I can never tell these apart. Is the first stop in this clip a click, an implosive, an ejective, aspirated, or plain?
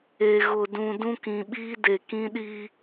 plain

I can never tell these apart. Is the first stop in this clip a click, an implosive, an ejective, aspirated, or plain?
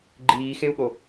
click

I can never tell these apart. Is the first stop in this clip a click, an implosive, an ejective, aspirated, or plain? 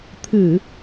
aspirated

